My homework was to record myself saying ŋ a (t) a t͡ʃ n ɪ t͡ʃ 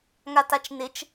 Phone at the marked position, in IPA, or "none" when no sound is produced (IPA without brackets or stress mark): t